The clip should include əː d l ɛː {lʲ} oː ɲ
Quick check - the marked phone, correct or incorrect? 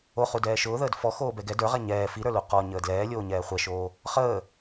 correct